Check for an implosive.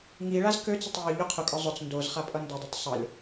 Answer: absent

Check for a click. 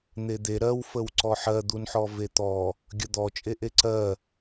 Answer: present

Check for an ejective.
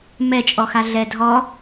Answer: present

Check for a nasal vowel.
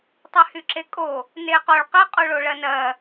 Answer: absent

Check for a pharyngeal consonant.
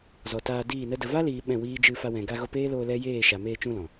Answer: absent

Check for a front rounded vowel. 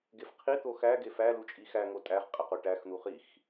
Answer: absent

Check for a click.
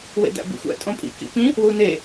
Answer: absent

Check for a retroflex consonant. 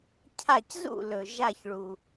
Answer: present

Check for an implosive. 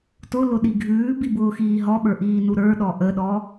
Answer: present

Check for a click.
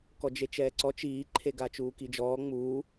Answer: present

